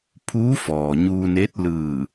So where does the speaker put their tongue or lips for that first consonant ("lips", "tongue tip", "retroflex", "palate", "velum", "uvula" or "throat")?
lips